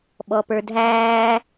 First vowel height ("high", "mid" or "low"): mid